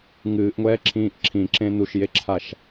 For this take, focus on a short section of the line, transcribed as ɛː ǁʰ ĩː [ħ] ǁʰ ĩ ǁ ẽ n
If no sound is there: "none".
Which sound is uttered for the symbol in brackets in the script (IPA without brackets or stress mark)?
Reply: ʔ